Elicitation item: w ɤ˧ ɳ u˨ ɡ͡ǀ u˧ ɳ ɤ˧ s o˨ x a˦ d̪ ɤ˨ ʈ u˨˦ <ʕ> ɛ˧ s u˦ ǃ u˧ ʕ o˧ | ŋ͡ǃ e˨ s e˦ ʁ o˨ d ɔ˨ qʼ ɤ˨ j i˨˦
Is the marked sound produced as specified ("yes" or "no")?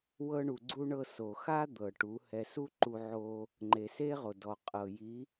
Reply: no